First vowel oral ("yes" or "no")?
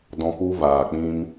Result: no